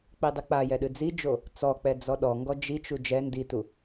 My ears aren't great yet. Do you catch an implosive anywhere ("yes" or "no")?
yes